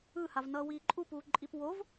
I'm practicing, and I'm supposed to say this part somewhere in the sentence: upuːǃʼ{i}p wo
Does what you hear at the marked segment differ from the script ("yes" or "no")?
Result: no